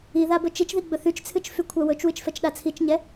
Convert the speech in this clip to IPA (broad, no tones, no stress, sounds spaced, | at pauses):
i ð a b ɵ t͡ʃ i t͡ʃ ð i ɡ͡b ɵ θ y t͡ʃ t͡sʰ ɨ t͡ʃ f y kʷʰ a w ɵ t͡ʃ w ɨ t͡ʃ f ɛ t͡ʃ ɗ a t͡sʰ i t͡ʃ ɲ ɛ